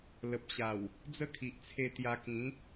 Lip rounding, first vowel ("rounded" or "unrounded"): unrounded